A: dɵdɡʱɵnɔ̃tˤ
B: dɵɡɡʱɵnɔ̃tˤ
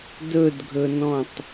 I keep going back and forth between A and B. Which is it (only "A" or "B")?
A